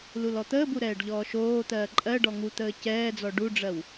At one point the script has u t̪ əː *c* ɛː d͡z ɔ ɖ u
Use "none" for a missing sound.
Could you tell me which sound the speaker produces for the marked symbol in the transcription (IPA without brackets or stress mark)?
c